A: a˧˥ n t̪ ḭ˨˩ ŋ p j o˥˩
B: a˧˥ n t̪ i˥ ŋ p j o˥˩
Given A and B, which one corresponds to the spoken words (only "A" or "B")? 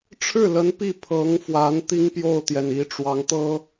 B